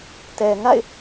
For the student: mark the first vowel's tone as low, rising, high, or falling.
low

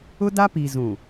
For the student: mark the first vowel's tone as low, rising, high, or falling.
high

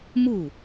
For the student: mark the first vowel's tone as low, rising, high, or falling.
falling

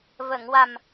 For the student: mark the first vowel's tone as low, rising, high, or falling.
low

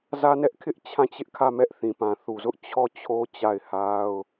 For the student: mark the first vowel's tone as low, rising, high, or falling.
high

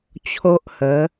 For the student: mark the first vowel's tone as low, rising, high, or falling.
high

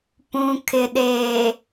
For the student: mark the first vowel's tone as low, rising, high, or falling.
low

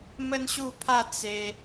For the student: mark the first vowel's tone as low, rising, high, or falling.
high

